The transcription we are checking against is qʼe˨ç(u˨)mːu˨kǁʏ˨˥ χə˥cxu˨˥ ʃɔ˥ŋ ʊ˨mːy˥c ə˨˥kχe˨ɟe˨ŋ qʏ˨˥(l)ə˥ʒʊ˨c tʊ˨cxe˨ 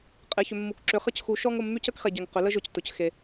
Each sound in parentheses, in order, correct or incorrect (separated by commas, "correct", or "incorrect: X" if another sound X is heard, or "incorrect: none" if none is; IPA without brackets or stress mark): incorrect: ʏ˨, correct